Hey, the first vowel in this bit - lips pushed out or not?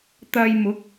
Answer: no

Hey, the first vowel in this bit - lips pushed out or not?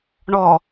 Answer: yes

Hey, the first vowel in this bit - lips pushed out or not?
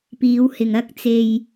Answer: no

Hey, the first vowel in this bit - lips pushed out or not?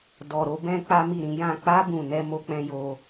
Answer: yes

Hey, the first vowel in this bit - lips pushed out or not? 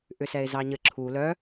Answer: yes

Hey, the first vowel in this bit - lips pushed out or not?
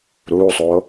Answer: yes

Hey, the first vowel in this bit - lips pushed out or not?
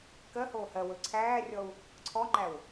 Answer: no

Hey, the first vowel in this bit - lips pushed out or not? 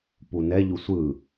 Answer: yes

